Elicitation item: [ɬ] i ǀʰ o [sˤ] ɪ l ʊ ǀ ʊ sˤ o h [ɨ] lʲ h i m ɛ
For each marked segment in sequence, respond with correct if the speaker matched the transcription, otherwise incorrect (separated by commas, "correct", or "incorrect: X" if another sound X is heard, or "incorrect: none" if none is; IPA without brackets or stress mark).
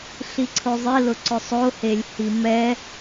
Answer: correct, incorrect: zˤ, incorrect: e